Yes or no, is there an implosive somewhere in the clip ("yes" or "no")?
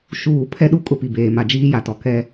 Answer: yes